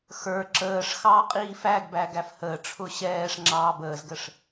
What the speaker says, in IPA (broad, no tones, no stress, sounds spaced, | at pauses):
x ə˞ ǁ əː ʂ x ɑː qʼ iː f æ ɡ b æ ɡ æ f h əː ʈ͡ʂʰ ʊ ɕ ɛː ʂ ŋ͡ǁ ɑː b əː z ɡ ə ʂ